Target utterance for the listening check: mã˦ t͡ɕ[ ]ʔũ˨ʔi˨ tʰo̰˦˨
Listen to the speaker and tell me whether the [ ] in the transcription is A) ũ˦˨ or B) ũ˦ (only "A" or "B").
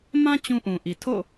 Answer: B